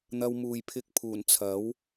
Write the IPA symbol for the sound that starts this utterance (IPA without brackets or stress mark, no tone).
n̪